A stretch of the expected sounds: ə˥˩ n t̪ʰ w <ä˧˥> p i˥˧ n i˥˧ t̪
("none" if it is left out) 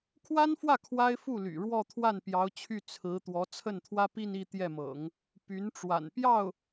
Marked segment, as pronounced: ä˥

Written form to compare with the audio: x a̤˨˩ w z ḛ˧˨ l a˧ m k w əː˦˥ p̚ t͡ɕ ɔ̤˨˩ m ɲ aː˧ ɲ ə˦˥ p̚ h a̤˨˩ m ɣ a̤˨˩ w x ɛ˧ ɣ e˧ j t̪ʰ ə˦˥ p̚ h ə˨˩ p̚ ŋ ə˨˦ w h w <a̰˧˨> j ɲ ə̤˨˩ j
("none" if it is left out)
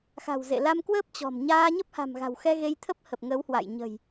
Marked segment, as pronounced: a̰˧˨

